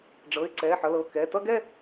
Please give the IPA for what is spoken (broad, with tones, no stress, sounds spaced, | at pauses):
ɖ͡ʐ ɤ˩˧˩ ɪ̯ ǀ ɛ˩˧˩ ħ ʌ˩˧˩ l ɤ˩˧˩ k ɛ˩˧˩ t ʌ˥˧ ɡ ɛ˥˧